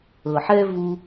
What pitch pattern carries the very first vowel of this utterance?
low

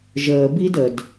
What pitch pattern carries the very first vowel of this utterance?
low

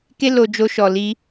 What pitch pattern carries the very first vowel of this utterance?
high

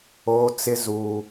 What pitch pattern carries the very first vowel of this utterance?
high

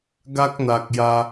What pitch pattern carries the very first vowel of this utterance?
high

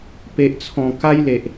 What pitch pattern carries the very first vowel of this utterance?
low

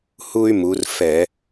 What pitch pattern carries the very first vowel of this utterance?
high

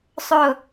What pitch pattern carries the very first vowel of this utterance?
falling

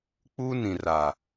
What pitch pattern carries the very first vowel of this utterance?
high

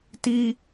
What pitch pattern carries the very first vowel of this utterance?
high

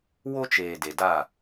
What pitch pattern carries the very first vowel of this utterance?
high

